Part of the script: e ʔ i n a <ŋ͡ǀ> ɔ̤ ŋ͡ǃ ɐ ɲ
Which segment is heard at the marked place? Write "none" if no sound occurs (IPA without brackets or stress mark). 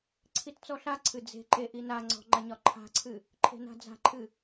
ŋ͡ǀ